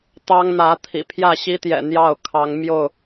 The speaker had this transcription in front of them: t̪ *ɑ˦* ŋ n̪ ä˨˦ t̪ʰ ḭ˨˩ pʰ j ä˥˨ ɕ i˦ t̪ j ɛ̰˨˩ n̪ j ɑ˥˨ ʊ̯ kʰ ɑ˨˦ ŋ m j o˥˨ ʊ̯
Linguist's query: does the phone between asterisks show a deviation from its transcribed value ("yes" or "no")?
no